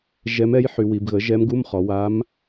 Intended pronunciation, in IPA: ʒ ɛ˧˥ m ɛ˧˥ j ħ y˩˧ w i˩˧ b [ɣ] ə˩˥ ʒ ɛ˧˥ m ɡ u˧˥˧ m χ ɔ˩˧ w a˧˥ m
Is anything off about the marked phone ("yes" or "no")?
no